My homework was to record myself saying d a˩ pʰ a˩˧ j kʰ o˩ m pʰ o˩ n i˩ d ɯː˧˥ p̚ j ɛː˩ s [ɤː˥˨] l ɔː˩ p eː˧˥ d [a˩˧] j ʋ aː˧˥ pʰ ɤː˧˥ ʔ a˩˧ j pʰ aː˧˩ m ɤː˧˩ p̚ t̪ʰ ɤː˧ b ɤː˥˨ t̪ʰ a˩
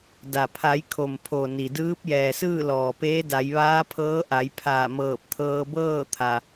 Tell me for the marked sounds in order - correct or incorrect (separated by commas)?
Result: incorrect, correct